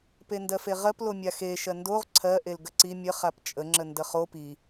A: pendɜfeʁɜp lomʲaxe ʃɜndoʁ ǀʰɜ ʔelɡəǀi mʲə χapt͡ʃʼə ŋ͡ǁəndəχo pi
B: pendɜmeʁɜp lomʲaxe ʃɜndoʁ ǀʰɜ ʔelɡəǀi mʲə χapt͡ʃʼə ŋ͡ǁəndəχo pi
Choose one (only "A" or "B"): A